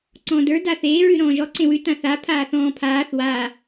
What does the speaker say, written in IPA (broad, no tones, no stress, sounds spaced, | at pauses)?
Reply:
ǀ ɔ̃ː d ə˞ d a θ eː ɹ ʉ ɾ ɔ̃ː ʒ ɔ ǀ ẽ w ʉ t ã θ a pʰ aː θ ɔ̃ː pʰ aː θ w a